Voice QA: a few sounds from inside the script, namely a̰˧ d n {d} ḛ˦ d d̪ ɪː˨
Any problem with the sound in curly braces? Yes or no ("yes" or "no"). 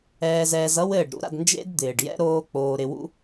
yes